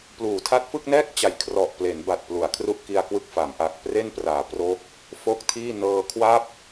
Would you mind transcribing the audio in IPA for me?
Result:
pluː˩˦tʰa˦˥t̚fɯ˥˩k̚nɛː˥˩k̚ t͡ɕa˨˩j kʰrɔ˨˩ʔple˩˦n ba˨˩t̚plu˩˦a̯ kʰru˥˩ʔki˧a̯kwɯ˥˩k̚ fa˩˦m ʔa˨˩k̚ pre˥˩npraː˩˦ pro˦˥k̚ | fo˥˩k̚tʰiː˥˩ nɤː˧kʰwa˥˩p̚

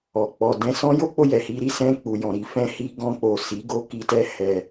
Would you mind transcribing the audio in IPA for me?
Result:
ɔ˨ k͡pɔ˨dɛ̃˧sɔ̃˦jo˦ k͡po˧jɛ˨hi˧ɾi˧ sɛ̃˧k͡pu˨jɔ̃˨ ɾi˧fɛ̃˦hi˦ ɡɔ̃˧k͡po˨ si˨˦ɡo˧ ki˧tɛ˦ hɛ˧

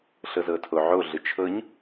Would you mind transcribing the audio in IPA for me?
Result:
ɬɤzɤtʰoʕo ɮɯt͡ʃʰɤɲ

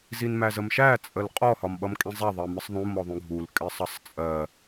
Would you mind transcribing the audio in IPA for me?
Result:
zinmæzəmʃæ t͡sʼəlqʼɔ hɒmɓʌmkʼĩzˤæ ðˤɜmɪsˤðˤũ mɔðˤũɡʱul kʼɪsˤʌsˤt͡sʼɜ

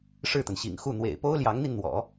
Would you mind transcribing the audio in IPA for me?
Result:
ʂɻ̩˥˩t̪ə˩nɕḭ˨˩ŋxu˥˩ n̪wḛ˨˩ɪ̯po˥ʊ̯ljɑ˧˥ŋn̪i˧n n̪wɔ̰˨˩˦

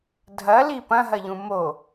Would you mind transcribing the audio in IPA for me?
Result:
dʱɐli pɐ̃ɦɐʎũ mo

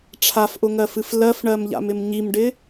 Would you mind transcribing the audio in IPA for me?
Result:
ʈ͡ʂʰafʔʊŋɜfɨf lɜfɳɜmʎa̰mɪm ɲimɖɪ

